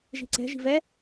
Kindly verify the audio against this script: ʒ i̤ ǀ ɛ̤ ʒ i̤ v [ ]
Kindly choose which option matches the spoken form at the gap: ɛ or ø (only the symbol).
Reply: ɛ